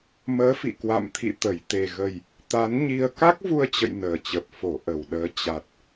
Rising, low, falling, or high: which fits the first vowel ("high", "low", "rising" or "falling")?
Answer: rising